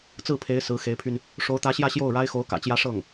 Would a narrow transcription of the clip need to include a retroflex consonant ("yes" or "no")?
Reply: yes